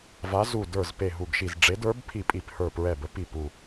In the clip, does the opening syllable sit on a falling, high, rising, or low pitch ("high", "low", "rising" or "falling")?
rising